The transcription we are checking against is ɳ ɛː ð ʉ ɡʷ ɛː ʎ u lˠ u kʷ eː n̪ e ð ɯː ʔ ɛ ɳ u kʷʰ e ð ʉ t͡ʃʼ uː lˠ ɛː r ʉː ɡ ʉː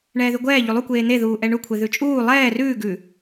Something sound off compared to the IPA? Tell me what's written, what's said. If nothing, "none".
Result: ɯː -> uː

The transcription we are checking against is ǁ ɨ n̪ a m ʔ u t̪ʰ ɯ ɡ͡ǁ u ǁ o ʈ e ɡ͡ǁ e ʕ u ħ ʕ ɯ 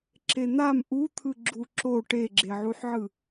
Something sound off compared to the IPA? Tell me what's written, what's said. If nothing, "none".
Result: ɨ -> e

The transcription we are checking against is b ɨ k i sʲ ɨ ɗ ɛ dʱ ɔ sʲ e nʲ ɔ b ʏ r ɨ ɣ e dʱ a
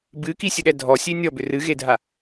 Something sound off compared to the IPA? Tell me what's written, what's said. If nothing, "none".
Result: none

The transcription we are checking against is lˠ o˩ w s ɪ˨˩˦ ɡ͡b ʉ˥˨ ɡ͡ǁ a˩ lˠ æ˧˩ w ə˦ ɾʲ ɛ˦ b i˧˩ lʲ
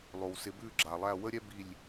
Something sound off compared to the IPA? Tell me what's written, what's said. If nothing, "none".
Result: ɡ͡b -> b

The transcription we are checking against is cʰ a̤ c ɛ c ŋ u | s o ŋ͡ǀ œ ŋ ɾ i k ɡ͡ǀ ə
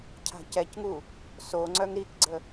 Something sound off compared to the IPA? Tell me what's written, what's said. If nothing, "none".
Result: none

